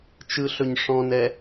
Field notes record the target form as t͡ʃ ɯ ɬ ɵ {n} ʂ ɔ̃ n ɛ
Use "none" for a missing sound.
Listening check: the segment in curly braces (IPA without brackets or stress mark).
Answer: ɲ